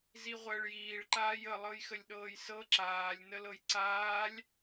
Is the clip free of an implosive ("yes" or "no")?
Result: no